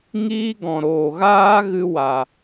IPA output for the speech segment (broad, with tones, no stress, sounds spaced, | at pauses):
ŋ iː˦ ɡ ɔ̃˨ ɾ oː˨ ɣ aː˦ ɣ ɨ˧ w a˨